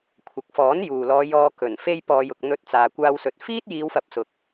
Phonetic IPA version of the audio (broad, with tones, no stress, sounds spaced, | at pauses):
kʷʰ ɐ˨ k̚ f ɔː˨˥ n j uː˨ l ɔː˨˧ j ɔː˧ k ɵ˨˩ n f e˧ j p ɔː˨ j ʊ˨ k̚ n̪ ɵ˨˥ t̚ t͡s aː˨ kʷ aː˧ w s ɵ˨˥ t̚ f iː˥ t̚ j iː˨˧ w f ɐ˨˥ p̚ s ʊ˨ k̚